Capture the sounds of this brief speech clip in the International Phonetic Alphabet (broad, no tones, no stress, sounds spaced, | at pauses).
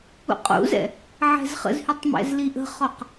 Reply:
ṵ qʼ ṵ z ɛ̰ | ʕ ɛ̤ z χ ə̰ z h y tˤ m ɛ̰ z l i ʔ ə̤ χ ɔ q